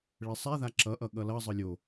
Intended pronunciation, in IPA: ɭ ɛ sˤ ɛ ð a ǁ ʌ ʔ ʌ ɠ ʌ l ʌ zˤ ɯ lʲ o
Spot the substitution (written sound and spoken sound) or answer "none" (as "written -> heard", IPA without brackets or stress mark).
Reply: none